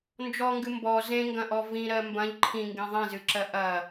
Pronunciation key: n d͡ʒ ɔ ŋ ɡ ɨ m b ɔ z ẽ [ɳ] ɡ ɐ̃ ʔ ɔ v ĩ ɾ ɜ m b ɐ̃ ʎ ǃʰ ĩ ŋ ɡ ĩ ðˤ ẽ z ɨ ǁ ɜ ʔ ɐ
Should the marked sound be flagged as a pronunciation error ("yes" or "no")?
yes